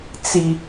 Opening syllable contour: high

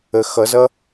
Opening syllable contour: low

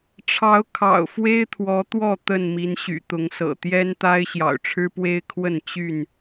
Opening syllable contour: rising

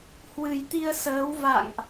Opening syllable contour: low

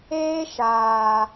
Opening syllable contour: high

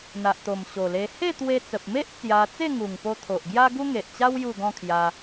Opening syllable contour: low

